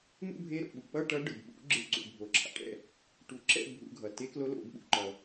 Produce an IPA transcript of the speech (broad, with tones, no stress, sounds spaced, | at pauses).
n̪ ṵ˥˧ bʱ e˧˥ ɾ o̰˩ ɓ u˩ k͡p ʌ˥˧ ʈ ʌ˧˥ ɖ ɯ˩ b ɓ ṵ˨˩˦ ɡ͡ǁ ɯ˨˩˦ ǀ ṵ˩ bʱ o˩ ǁʰ a̰˩ ʈ ɛ̰˥˩ | ʈ u˨˩˦ ǁ ɛ̰˥˧ bʱ ṵ˨˩˦ ɡʱ ʌ˩ t e˧˥ k l o˧˥ l o̰˨˩˦ b ɓ ṵ˧ ǃ ʌ˩